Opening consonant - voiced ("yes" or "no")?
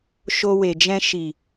no